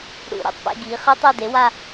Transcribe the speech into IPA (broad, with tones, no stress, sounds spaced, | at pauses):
ɽ ṵ˨˩˦ ɾ ḛ˩˥ tˤ p ḛ˥˧ ɡ iː˩˥ χ ɯ˦˥ tˤ e˥˧ d e˩˥ w a˥˧